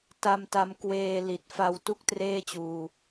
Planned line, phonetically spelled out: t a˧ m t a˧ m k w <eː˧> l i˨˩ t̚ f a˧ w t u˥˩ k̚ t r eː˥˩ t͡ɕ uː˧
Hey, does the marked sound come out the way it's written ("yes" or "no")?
yes